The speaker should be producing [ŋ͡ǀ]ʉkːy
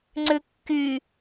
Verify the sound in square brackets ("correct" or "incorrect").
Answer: correct